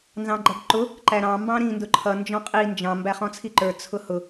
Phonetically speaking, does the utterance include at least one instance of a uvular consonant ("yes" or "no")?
yes